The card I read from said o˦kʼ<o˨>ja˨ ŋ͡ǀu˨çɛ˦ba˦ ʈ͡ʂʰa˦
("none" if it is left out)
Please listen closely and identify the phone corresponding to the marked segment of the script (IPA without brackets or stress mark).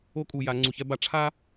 u˨